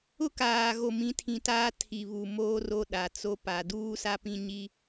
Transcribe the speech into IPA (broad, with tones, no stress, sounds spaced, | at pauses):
ʊ˦ k aː˨ ɣ o˨ m ĩ˨˦ tʰ ĩ˨ t aː˦ tʰ i˨ β u˨ m oː˦ r o˦ ɗ a˨ t͡s o˦ p a˨ d uː˦ s a˦ p ĩ˦ ɲ i˦